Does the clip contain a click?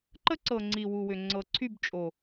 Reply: yes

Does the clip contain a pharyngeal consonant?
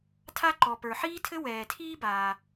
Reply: yes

